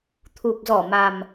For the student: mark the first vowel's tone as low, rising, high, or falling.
low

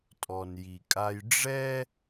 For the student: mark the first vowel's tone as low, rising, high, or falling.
low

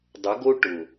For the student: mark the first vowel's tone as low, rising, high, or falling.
rising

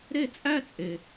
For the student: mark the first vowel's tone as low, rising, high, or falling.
falling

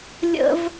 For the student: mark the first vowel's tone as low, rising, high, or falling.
high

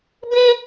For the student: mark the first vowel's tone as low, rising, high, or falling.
high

